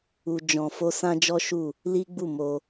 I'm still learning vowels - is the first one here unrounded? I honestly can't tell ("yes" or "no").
no